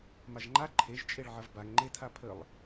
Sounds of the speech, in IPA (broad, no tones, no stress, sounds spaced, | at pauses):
m a ʒ ŋ͡ǃ a ǃʰ e ʒ t͡ʃʼ e ɭ ʕ ɐ v b a ŋ ŋ͡ǃ e tʰ a pʰ ə lˠ